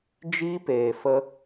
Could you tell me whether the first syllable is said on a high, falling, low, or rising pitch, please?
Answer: high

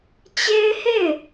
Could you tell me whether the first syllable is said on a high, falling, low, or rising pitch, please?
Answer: high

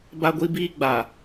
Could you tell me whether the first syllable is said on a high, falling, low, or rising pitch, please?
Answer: high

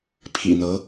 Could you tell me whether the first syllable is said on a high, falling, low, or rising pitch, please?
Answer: low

